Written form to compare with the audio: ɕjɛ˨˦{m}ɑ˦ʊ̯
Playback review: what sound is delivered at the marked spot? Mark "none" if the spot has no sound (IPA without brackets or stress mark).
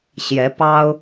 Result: p